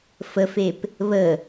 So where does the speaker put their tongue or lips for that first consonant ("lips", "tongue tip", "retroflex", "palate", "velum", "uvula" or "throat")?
lips